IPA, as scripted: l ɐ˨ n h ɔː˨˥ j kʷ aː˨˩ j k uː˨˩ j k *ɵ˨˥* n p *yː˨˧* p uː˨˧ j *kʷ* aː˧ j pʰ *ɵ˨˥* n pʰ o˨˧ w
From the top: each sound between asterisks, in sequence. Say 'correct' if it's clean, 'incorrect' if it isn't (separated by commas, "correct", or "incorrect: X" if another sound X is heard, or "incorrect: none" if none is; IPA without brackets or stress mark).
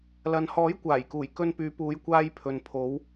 incorrect: ɵ˧, correct, correct, incorrect: ɵ˨